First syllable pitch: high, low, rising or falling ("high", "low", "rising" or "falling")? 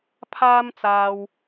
high